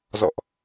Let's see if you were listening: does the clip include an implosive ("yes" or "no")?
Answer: no